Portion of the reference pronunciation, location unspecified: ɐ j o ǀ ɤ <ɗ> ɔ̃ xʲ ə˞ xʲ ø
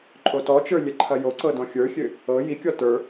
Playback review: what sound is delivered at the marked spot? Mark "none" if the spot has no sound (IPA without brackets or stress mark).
d